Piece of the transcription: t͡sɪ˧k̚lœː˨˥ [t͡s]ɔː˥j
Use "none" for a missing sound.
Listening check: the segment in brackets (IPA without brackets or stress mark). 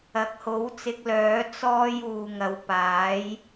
t͡s